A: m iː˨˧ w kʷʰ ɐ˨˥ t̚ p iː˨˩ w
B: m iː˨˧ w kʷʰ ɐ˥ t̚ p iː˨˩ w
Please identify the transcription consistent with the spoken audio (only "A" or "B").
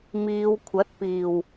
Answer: A